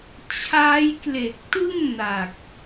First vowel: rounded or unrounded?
unrounded